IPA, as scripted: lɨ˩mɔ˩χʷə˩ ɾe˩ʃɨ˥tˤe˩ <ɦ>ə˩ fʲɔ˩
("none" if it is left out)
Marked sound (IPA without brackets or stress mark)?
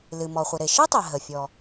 ɦ